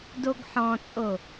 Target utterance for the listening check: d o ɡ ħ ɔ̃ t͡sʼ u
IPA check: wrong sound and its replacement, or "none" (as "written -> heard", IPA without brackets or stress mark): u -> o